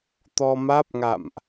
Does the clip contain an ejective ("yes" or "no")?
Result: no